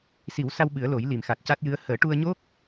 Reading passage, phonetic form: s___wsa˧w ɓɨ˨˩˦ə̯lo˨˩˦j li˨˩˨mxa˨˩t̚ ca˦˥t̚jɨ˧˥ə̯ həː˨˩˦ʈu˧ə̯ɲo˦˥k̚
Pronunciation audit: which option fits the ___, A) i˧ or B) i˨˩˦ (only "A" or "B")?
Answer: B